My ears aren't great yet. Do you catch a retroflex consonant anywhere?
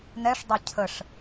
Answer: yes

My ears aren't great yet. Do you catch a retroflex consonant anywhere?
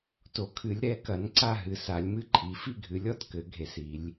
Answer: no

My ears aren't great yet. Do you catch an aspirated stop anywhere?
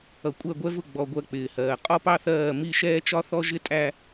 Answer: no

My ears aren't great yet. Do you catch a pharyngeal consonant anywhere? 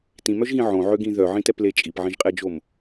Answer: yes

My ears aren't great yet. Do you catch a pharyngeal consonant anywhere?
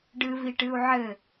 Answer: yes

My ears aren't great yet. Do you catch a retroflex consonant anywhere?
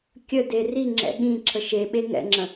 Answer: no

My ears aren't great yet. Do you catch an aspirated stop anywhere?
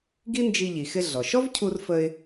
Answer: yes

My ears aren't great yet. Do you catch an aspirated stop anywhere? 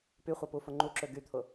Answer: yes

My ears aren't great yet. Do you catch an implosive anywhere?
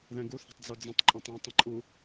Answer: no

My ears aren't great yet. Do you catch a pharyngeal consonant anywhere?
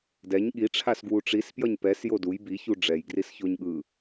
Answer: no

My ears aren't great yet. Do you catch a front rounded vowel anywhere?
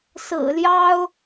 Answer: no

